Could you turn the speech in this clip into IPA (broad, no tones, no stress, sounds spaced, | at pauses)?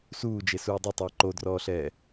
s uː d͡ʒ e s uː dˤ ɵ tˤ əː ǃ o d r ɔː ɬ ɛː